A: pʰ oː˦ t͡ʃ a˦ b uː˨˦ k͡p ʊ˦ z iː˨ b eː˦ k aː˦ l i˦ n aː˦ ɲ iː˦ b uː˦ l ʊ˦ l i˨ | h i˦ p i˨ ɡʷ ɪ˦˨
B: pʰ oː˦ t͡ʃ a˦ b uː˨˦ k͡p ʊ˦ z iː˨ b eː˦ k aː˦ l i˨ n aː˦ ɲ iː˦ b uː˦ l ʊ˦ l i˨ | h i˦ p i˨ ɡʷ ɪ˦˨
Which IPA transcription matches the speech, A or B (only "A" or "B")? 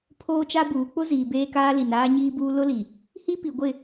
B